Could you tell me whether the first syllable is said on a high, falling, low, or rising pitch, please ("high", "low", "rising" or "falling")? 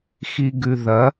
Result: low